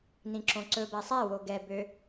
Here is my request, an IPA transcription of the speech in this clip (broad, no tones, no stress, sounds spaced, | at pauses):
n ĩ ǁ õ ǀ ɵ b æ sˤ æ w o ɡ ɛ b ø